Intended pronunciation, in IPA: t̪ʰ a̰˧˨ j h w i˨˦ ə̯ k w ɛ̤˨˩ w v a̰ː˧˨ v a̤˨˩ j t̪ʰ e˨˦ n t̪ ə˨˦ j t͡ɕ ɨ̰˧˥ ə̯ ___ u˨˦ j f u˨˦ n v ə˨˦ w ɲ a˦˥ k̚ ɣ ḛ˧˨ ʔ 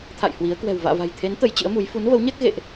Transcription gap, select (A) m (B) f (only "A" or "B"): A